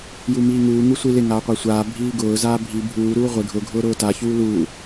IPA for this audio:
j u m iː ŋ uː ŋ u sʷ i l ɪ ŋ aː qʷ a sʷ aː bʱ iː ɡ ʊː z aː bʱ i bʱ uː ɾ uː ʁʷ ɪ ɡʱ ʊ ɡʱ ʊː ɾ ʊː t a ç uː l uː

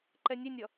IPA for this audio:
ǃ ɛ nʲ e nʲ ʌ

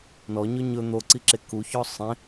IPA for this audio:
n ɔ ɲ ɵ ɲ ɵ n̪ o ǀ i ǁ e k u ç ɔ sˤ ẽ

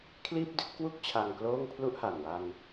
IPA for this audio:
kʰ l iː˥˩ p̚ d i˦˥ t̚ k w u˥˩ k̚ t͡ɕʰ a˧ ŋ k l oː˥˩ ŋ pʰ l u˥˩ ʔ h a˨˩ n w a˧ n

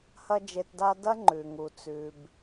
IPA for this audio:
h ɐ˥ d͡ʒ e˧ t d a˥ d ɐ˥ ŋ͡ǃ ʉ˩ ŋ u˩ t͡s ʉ˩ b

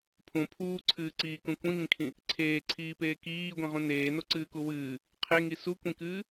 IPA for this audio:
pʰ ũ pʰ uː ǀʰ ɨː ǀ iː k ũ kʷ ĩ ŋ ĩ kʰ ĩ | ǀʰ eː ǀʰ iː p eː k iː ɡʷ ĩ ʁ ũ n eː n o ǀ ɨː k u w ɨː | qʰ e ŋ i s u kʷ ĩ k ɨː

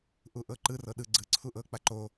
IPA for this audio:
ʔ u ʔ ɤ ǃ ɯ r ɤ ɗ ɯ ɡ͡ǀ ɯ ǀʰ u ʔ ɤ k͡p a ǃ o

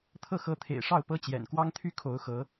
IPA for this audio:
t̪ʰ ɤ˥˩ x ɤ˧˥ t̪ʰ ḛ˨˩ ɪ̯ ʂ ɑ˥˩ ʊ̯ p ɤ˥ t͡ɕ j ɛ̰˨˩ n k w ɑ˥ ŋ t̪ʰ y˥ kʰ o˧˥ ʊ̯ x ɤ˧˥

